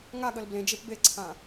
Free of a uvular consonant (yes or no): yes